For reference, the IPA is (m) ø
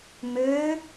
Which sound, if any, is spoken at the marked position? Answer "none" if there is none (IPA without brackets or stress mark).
m